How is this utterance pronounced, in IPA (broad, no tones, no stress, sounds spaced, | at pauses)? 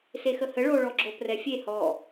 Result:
s e x ə h ə ɭ o ɭ ɔ ɡ͡ǁ o p r ɛ fʲ e h ɔ